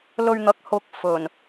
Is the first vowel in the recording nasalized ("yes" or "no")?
no